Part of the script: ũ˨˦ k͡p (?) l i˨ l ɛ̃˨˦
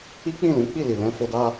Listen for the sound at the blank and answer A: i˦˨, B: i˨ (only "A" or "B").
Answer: A